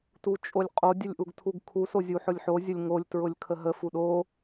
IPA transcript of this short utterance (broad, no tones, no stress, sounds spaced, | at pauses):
t u t͡ʃʼ o lʲ qʼ o dʲ ə lʲ ʔ u ɡ tʰ u ɡ kʰ u s o zʲ u ħ ʊ lʲ ħ o zʲ ə lʲ ŋ o lʲ t ɹ ʊ lʲ kʰ ə ɦ ə f u ɗ o